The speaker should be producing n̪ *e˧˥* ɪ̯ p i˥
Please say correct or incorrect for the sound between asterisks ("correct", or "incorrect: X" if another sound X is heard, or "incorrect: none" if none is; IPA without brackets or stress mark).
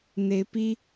correct